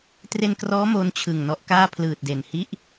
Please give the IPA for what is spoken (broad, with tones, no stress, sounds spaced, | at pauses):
t r e˧ n k r ɔː˦˥ m o˦˥ n t͡ɕʰ ɯ˨˩ ŋ n ɔ˦˥ ʔ k aː˥˩ pʰ l ɯː˨˩ t̚ d e˨˩ n h i˥˩ ʔ